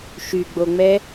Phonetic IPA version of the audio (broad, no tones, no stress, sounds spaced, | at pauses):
ʃ y ɡ͡b o ŋ͡m ɛ